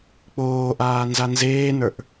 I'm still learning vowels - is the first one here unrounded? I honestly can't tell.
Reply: no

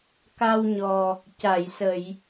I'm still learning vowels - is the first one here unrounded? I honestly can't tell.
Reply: yes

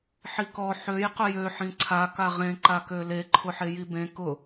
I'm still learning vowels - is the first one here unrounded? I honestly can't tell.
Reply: yes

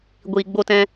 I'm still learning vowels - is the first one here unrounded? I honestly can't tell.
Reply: yes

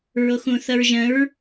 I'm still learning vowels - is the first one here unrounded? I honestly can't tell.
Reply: no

